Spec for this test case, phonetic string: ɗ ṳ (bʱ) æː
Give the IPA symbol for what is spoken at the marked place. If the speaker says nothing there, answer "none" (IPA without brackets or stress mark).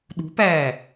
p